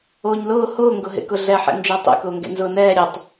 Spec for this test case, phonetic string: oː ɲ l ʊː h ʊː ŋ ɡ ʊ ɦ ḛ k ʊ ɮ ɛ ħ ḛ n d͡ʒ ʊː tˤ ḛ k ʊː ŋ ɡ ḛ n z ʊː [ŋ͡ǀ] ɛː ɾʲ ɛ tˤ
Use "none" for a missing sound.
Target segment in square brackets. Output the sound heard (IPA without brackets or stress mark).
n